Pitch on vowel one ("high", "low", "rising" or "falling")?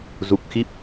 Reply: low